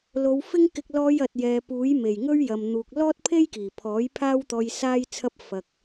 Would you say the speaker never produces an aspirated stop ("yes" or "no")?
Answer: no